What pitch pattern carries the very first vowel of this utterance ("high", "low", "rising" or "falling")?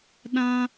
high